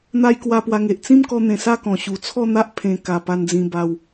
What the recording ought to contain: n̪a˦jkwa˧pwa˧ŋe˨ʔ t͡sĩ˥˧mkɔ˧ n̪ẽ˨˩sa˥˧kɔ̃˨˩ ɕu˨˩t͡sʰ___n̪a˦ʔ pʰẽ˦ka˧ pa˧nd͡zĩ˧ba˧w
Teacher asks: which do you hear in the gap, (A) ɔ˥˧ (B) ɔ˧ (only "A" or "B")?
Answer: A